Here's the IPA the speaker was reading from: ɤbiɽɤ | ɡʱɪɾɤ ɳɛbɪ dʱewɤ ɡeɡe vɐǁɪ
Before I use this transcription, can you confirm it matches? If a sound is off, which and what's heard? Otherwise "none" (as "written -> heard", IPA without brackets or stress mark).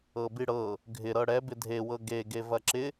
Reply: ɳ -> ɽ